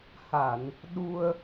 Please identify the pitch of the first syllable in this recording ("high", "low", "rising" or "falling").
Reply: low